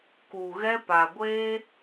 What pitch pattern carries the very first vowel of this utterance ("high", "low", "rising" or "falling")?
low